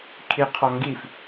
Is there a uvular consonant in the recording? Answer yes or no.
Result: yes